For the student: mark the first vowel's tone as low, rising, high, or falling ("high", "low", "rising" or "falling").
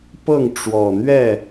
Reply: falling